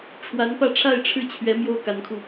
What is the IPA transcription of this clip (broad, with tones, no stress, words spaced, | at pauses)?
ʈ͡ʂʰwa˧˥npä˥˧ ʈ͡ʂʰa˥˧ɪ̯ʈ͡ʂʰɻ̩˥˩t͡ɕʰɥɛ˧˥ mjo˥ʊ̯ka˧˥nkʰu˧